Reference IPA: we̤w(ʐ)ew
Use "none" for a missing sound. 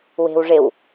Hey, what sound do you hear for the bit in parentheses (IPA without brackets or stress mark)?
ʐ